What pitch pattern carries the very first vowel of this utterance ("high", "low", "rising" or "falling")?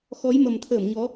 rising